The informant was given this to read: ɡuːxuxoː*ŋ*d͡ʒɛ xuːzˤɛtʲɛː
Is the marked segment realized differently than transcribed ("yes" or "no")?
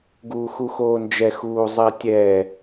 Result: yes